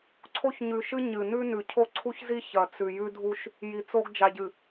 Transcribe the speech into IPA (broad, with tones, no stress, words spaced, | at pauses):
ǀʰo˦çɲʉ˨ʃɨ˦ ɲɨ˨ nʉ˦nʉ˨ cʰo˦ǀʰu˦çzi˦ çɐ˨t͡sʉ˨ jʉ˦dʱu˦ʃ | ji˨t͡so˦ɡ d͡ʒa˨ɟɨ˨